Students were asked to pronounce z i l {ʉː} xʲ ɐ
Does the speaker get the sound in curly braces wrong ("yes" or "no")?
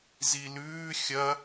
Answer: no